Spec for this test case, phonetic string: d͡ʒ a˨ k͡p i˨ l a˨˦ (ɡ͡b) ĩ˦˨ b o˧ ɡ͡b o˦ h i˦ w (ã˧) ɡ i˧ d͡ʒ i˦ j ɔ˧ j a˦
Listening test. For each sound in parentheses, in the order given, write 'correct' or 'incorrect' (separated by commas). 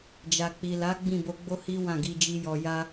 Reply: correct, incorrect